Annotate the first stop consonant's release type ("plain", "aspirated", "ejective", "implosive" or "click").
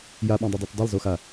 implosive